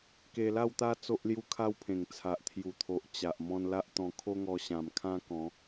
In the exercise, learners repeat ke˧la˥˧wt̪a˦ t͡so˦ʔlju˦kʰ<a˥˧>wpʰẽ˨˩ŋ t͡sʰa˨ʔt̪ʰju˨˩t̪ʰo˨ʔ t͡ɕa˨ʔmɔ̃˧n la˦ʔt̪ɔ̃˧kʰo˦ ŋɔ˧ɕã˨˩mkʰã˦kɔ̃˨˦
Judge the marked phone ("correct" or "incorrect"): incorrect